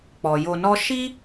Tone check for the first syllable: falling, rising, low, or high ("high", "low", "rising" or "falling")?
low